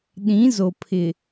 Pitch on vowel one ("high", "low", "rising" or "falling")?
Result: rising